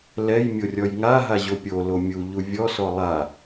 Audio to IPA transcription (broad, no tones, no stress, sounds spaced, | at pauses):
l ɛ j mʲ o rʲ ɔ j ŋ a ɦ a ʑ o pʲ o l o mʲ u ʎ u vʲ ɔ s ɔ lˠ a